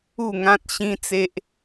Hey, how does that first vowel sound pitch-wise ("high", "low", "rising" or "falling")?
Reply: falling